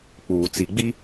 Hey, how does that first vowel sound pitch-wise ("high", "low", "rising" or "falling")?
low